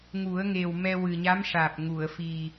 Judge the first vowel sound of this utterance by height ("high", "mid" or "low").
high